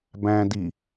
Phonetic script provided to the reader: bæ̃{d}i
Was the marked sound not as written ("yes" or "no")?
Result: no